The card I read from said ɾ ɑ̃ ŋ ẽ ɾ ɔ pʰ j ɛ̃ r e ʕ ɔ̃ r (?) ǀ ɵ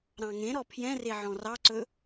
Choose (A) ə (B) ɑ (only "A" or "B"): B